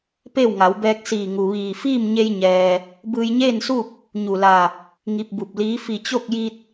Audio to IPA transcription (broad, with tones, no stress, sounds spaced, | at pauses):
p e˥˨ w ŋ a˩˧ w b ɛː˧ k̚ s iː˧˩ ŋ u˩ ʋ iː˧˩ f iː˥˨ m ɲ e˧ j ɲ ɛː˩ | b ɯː˧ j ɲ eː˥˨ n s u˥˨ p̚ | ɲ u˧˩ l a˧˩ | ŋ i˧ p̚ b u˧˩ p̚ l iː˧˥ f i˧˩ t͡ɕ o˥˨ k̚ j i˧ t̚